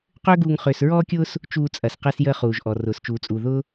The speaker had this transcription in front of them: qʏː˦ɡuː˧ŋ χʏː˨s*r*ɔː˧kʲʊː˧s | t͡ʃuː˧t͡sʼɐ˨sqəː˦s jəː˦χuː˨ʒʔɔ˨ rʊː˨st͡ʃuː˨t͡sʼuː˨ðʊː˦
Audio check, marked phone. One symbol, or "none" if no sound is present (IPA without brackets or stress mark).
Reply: ɹ